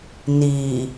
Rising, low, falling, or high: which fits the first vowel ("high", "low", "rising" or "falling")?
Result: low